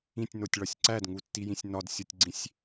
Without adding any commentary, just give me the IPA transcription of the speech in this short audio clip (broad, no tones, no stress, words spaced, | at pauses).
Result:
ĩtʲnotʲɭɒsʲ ǀædŋutːijĩsʲ nɒdsʲotʲɡ͡ǀĩsʲ